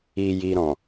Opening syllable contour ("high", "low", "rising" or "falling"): low